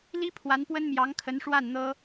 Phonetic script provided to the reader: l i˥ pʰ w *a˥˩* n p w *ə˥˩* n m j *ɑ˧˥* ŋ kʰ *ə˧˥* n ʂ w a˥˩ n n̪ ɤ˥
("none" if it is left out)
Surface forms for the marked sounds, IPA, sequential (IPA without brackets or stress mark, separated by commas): a˧˥, ə˥, ɑ˧˥, ə˧˥